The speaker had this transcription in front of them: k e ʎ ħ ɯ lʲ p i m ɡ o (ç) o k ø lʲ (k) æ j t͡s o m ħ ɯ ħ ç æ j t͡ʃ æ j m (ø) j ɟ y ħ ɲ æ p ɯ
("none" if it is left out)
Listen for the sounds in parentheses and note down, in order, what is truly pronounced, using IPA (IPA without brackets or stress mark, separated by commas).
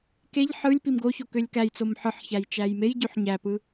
ç, k, e